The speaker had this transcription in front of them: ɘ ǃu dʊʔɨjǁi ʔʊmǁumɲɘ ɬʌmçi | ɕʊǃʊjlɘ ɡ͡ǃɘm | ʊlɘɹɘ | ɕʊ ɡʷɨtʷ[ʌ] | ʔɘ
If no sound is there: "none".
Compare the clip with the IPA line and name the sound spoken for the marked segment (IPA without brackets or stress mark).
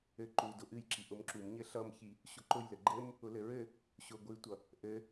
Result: ʌ